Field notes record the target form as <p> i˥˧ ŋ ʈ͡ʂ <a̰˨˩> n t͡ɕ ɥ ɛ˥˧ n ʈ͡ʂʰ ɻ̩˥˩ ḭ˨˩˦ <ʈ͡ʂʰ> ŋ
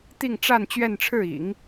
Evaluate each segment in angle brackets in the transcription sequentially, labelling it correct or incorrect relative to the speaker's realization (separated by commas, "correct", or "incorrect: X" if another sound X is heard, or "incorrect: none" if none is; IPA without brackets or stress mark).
incorrect: t̪, incorrect: a˥˧, incorrect: none